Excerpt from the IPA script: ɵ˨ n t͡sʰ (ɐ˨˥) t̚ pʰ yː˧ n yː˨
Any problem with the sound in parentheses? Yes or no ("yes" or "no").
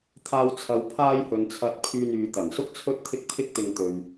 yes